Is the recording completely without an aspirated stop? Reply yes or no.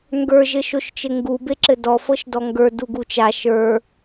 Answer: yes